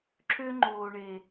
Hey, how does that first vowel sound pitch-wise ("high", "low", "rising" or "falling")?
high